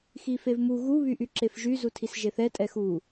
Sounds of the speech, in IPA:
x i f e v m u ɣ u β y ʔ y ǁ e f ʒ y z u tʰ i s ʒ e θ ɛ tʼ ɛ x u

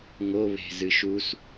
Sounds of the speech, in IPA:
ŋ o β e̤ z ɨ ʃ u s

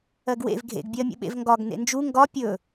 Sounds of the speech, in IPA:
ɜ ɡ w ḛ v ɡʱ ḛ ɡ bʲ ɜ mʲ ṵ ɓ ḛ v ŋ ɡ ɒ ɡ n ḛ n d͡ʒ u ŋ ɡ ɒ pʲ ɵ

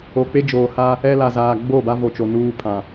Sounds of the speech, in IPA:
o˨ k͡p e˦ d͡ʒ oː˨ h a˦ | ɛ˦ l a˨ z aː˨ ɡ͡b o˦˨ b a˦ v o˨ t͡ʃ o˨ n uː˦ pʰ ã˨

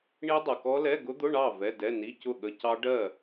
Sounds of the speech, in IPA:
ɳ i˦˥ dˤ ɛ˨ k ɔ˦˥ l ɛ˧˥˧ ɡ ʊ˦˥ d̪ ʊ˧˥˧ ɳ ɑ˥˨ v ɛ˧˥˧ d ɛ˧˥˧ n i˧˥˧ c ʊ˥˨ ɠ ə˧˥˧ c ɑ˦˥ ɖ ɜ˥˨

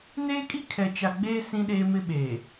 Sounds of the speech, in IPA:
n eː˦ kʼ i˦ kʰ ɛ˨ t͡ʃ a˨ ɡ͡b eː˦ s ĩ˦ ɗ eː˦ m ɪ˦ ɓ eː˨

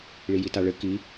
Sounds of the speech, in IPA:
ɭ i j i t a ɭ ɘ k i

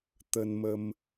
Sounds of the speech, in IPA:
t̪ ə˧ n m ə˧ m

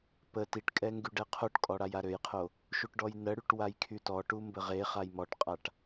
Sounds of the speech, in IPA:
p ə t i ʈ kʼ ɛ ŋ ɡ y ɖ ɛ qʰ o ʈ kʼ ɔ ɽ a j a ɾ ø j qʰ o | ʃ u ʈ ɖ ɔ j n ə ɽ y ʈ w a j kʰ y t ɔ ʈ u m b ə ʁ e χ a j m ɔ ʈ qʼ a ʈ

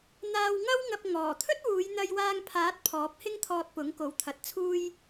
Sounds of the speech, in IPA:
n̪ aː˧ w ŋ ɐ˥ w ŋ ɐ˧ p̚ ŋ ɔː˨˩ t̪ʰ ɵ˥ t̚ w uː˨˧ j n̪ ɐ˧ j w aː˧ ŋ pʰ aː˨˥ t̚ pʰ ɔː˨˥ p̚ h ɪ˥ ŋ t̪ʰ ɔː˧ t̚ p ʊ˨˥ ŋ k o˨˥ w t̪ʰ ɐ˨˥ t̚ t͡sʰ uː˥ j

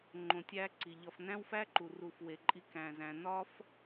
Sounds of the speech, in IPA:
ŋ͡ǃ õ˧ tʲ æː˦ ǀ i˨ ʎ ɒ˧ f n æ̃˦ w f æ˦ ǃ u˨ r u˧ f w e˧ ǃʼ i˦ k æ̃˨ z æ̃˨ n ɒ˦ f

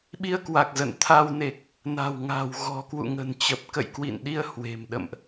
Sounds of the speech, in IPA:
ɓ i˧ ə̯ k w a˨˩ k̚ z ə̰˧˨ n t̪ʰ a˧ w n e˨˩ k̚ | n a̤˨˩ w ŋ a̤˨˩ w ɣ ɔ̤˨˩ k w ṵ˧˨ ŋ ə̤˨˩ n t͡ɕ ə˨˩ p̚ k ə̰˧˨ j k w ḭ˧˨ n ɗ i˧ ə̯ h w e̤˨˩ m ɗ ə̰˧˨ m ʔ

